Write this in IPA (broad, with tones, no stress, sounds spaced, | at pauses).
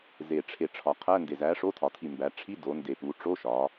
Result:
z e˨˩ ʈ͡ʂʰ e˨˩ ʈ͡ʂʰ ɒ˩˧ qʰ æ˧˥˧ n d e˨˩ z æ˨˥ ʂ o˧˥˧ tʰ ɒ˩˧ tʰ i˨˩ m b æ˩˧ ʈ͡ʂʰ i˧˥˧ d o˩˧ n d e˨˩ p u˩˧ ʈ͡ʂ o˧˥˧ ʃ ɒ˩˧